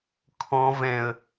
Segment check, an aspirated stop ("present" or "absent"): present